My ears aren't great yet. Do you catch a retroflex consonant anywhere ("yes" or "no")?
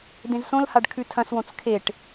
yes